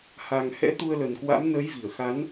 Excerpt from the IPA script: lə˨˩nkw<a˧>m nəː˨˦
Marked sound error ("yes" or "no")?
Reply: yes